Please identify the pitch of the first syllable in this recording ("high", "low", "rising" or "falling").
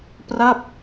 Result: falling